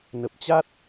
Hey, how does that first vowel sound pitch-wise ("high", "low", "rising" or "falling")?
low